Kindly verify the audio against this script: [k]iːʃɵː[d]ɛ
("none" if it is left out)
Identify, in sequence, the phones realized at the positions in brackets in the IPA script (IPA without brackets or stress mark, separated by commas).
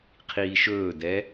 qʰ, d